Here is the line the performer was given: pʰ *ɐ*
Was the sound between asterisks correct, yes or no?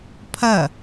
yes